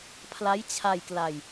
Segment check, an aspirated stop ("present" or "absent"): present